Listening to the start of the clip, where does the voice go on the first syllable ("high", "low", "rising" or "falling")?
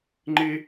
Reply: high